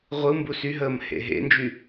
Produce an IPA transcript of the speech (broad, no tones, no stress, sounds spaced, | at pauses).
ʁʷ ɯ m b u s y ɦ əː m h ḛ ɦ ḛ n d͡ʒ y